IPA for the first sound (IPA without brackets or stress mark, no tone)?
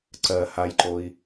ǀ